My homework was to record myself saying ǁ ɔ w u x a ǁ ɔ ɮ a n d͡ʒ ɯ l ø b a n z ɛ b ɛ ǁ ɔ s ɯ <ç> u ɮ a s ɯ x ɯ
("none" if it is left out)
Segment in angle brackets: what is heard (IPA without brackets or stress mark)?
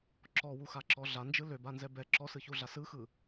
ç